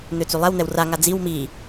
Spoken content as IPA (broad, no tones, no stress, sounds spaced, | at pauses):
n̪ ø t͡s y lˠ ɛ w n̪ ɛ w r a ŋ a d͡z i w m i